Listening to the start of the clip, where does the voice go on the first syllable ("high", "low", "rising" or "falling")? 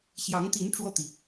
rising